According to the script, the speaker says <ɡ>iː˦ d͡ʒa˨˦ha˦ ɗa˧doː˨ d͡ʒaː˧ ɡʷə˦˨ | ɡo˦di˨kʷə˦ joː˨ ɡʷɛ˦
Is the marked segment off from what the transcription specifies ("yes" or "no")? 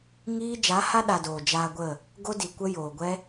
yes